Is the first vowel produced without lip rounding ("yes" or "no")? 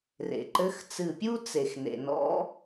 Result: yes